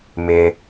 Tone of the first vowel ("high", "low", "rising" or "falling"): low